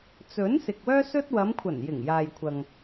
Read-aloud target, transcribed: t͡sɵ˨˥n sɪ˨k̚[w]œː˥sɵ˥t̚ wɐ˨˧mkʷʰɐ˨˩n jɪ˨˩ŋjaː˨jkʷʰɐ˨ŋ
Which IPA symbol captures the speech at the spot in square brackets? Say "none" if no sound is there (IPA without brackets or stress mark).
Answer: w